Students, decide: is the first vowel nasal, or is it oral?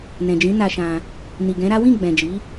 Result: nasal